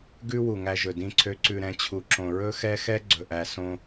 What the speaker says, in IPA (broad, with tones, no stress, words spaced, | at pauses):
ɡʉ˦ wu˨ŋæ˦ʒɵ˨ dĩ˨ǀʰø˨ǀʉ˨ɾɛ̃˨ t͡ɕʰu˨ǁõ˨ ɹɵ˦xɛ˦xɛ˦ ɡ͡ǀɵ˨ʔæ˨ sõ˦